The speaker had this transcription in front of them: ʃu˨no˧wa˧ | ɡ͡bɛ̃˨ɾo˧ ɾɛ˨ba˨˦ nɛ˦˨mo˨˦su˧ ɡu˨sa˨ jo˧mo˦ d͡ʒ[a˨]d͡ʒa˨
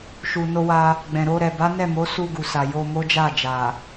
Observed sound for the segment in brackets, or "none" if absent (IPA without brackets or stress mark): a˦˨